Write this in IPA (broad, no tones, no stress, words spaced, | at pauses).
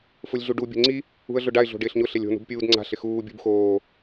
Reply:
fʊlʲɮuɖu bʲo̤ŋ͡ǀi | ṳə̯ɮʊɖaɪ̯ ɮo̤ɖɪːɬɲʊ ɬelʲo̤ nṳbpʲuːdŋ͡ǀa̤ ɬɪxuː bʲṳbxoː